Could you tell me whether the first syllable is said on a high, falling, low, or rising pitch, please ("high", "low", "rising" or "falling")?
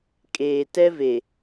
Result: low